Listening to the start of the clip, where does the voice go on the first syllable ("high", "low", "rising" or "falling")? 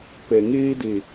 low